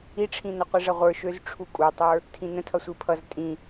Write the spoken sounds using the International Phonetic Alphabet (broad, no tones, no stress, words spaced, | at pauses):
iʈ͡ʂʰĩnʌ qʷiʐʌʁʷə˞ ʃøzʈ͡ʂʰu kʼutˤə˞ | tʰĩnə̃tʰʌ sʷipʰʌz tʼĩ